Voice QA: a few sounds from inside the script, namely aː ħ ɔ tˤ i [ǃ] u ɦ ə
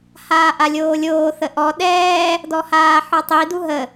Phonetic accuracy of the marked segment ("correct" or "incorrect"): incorrect